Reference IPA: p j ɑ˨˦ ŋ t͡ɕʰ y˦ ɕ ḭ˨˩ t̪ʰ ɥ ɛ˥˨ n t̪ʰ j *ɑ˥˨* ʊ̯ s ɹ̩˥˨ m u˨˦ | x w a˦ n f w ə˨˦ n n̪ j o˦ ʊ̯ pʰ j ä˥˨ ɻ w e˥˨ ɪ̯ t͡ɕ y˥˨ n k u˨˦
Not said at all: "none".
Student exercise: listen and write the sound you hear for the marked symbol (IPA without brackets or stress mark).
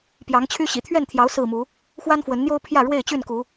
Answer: ɑ˨˦